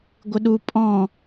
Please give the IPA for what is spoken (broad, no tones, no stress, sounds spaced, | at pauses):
ɡʷ ɪ ɗ u pʼ ɔ̃